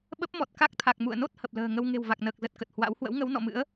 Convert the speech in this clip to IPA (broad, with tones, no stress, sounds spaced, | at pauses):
ɓ ə˦˥ p̚ m ɔ˨˩ t̚ k a˦˥ k̚ t̪ʰ a˨˩ k̚ m ṵ˧˨ ə̯ n o˦˥ t̚ h ə˨˩ p̚ l ə̤ː˨˩ ŋ ə˧ w ŋ e̤˨˩ w v a˨˩ k̚ n əː˨˩ k̚ z ə˨˩ t̚ k ə˨˩ t̚ h w a̰˧˥ w h w ə̰˧˥ w ŋ ə˨˦ w n ɔ̰˧˨ m ɨ̰˧˥ ə̯